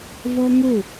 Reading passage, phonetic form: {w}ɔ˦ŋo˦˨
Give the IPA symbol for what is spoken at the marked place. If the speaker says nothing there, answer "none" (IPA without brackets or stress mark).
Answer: v